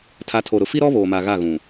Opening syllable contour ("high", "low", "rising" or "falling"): rising